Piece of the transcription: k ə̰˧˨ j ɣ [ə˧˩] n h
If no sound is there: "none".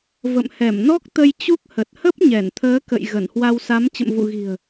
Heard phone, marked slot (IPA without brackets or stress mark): ə˧˩